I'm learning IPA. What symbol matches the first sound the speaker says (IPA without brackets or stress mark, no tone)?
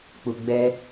k͡p